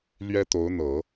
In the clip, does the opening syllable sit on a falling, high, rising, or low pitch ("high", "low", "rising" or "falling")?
high